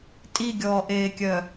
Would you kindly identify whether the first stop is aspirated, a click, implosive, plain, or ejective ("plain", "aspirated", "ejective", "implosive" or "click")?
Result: ejective